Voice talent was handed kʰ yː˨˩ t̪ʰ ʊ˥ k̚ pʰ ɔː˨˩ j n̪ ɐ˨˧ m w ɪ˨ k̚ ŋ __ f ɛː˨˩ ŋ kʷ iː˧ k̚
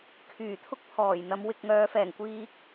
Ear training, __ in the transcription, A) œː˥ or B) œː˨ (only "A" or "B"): B